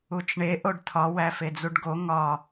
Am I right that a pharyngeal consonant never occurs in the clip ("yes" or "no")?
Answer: yes